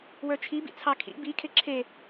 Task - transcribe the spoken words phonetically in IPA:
w ə˞ t͡ʃʰ i b ḭ t͡sʰ ɑ kʰ ḭ b i kʰ e ǁʰ e

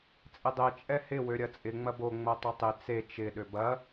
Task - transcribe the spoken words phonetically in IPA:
t͡sʼ ɪ dˤ e t͡ʃʼ ɛ h ɪ w ø ɾʲ ɐ t͡sʼ ɪ ŋ͡m ɐ b o ŋ͡m o tˤ ɐ tˤ ɪ t͡s e t͡ʃ ɪ ɗ ø b ɐ

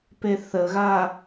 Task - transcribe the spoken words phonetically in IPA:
p e θ ə ɣ a

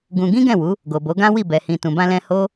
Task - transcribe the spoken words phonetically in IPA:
ɡ ũ˧ ɡ ĩ˦ ɡ ɛ̃˦˨ w u˨˦ | ɡ o˨ b o˨˦ ɡ ã˦ w i˦˨ b ɛ˨ h ĩ˨ t ũ˨ b ã˧ l ɛ̃˧ h o˦

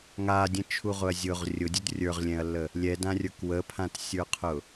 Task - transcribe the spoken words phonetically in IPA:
ŋ a dʲ ə̃ t͡ʃʰ u ʁ ʊ ɐ̯ zʲ ʊ ʁ rʲ ʊ dʲ u d rʲ ə˞ ʁ lʲ ɛ̃ ɐ̯ lː ə | lʲ ɛ d ã rʲ ə˞ k w ə pʰ ã t sʲ ə˞ qʰ ʊ

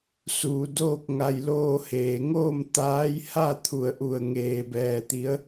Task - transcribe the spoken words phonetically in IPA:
s uː˩˧ d oː˥˨ k̚ ŋ a˧ j l oː˧ h eː˩ ŋ oː˥˨ m t̪ aː˧˥ j h a˥˨ t̪ʰ u˧˩ ə̯ ʔ u˧˩ ə̯ ŋ eː˧ b ɛː˧ t̪ i˧˥ ə̯

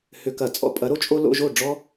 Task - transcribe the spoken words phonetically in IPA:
h ʏ˧˩˧ k ɐ˧˩˧ t͡sʼ ɔ̰˧˩˧ pʼ ɐ˨˦ ɾ o˦ t͡ʃʼ o˦ l o̰˦ ʒ o˥˨ ɖ͡ʐ ɔ˦

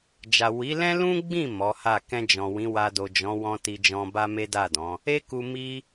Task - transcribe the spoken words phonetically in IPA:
d͡ʒ a˨ w i˨˦ l ɛ̃˦ l ũ˦ ɡ͡b ĩ˦˨ m ɔ˨˦ h a˦˨ k ɛ̃˧ d͡ʒ ɔ̃˨ w ĩ˨˦ w a˧ d o˨ d͡ʒ ɔ̃˨˦ w ɔ̃˦ t i˧ d͡ʒ ɔ̃˧ b a˦ m e˦ d a˦˨ d ɔ̃˨˦ | e˦ k u˧ m i˦

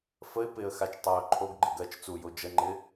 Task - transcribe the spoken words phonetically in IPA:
f ə ɪ̯ p ɪ ə̯ x a t͡ʃ tˤ a ʊ̯ ǃʰ o ɡ ɡ͡ǃ ɪ ɡ ɜ t͡ʃ t͡s u j o d͡ʒ ə ŋ͡ǃ ɪ

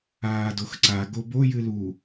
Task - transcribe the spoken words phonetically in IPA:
aː d o x ǀ a ɡ o b o j ɨ l u

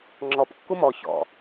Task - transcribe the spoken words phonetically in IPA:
ŋ͡ǁ ɔ p kː u m ɔ ç ɔ̰

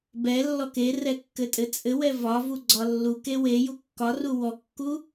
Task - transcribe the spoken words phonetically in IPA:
b ɛ lː ɔ k e r ɛ kː ɘ tʼ ɘ t͡sʼ ɘ w ɛ v ɒ v u ɡ͡ǀ ɒ lː u k e w e j u kː ɒ r u w ɔ kː u

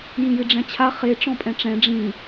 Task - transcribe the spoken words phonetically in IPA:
j ĩ j ɨ ɖ͡ʐ ɛ̃ t͡ɕʰ a χ e ʈ͡ʂ ɔ̃ pʼ ɛ̃ ʈ͡ʂ ɛ̃ ɖ͡ʐ ĩ

